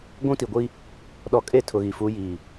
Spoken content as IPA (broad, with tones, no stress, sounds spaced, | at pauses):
ɡʷ ũ˦ t i˨ ɡʷ i˦ | ɗ ɔ˨ kʼ e˦˨ tʰ ʊ˨ ɣ i˨ f u˨˦ j iː˨